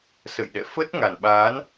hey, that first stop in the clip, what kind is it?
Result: implosive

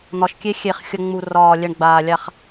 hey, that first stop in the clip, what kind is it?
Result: plain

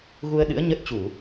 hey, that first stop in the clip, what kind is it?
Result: implosive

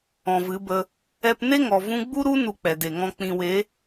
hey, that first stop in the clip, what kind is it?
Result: plain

